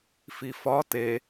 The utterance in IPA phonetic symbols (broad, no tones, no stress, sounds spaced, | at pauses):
f i f ɒ t e